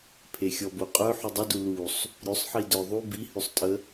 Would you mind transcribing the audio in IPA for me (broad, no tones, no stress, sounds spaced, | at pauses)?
pʰ e xʲ ɔ b o qʼ œ ħ u dˤ ə d u l u sˤ | ɾʲ ʉ sˤ ħ i d œ ðˤ u b i h ʉ sˤ tʼ ə